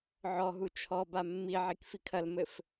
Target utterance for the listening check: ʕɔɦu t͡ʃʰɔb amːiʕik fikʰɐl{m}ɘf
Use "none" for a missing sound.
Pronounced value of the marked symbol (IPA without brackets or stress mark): m